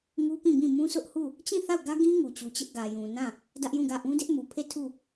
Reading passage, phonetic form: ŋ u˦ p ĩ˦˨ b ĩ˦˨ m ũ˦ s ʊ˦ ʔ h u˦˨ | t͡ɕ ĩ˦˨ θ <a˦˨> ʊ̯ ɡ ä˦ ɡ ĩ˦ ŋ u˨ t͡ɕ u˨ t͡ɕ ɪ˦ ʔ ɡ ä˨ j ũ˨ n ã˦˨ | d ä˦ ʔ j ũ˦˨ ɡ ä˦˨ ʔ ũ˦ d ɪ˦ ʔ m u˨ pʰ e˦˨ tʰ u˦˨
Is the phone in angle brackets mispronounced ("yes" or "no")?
no